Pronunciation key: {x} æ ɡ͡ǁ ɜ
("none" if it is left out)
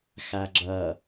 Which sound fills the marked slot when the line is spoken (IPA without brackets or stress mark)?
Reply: x